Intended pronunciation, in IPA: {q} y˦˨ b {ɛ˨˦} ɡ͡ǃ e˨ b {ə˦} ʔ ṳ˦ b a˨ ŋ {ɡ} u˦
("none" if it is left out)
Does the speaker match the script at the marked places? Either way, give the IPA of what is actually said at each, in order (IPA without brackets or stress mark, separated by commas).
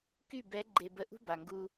k, ɛ˨˦, ə˨, ɡ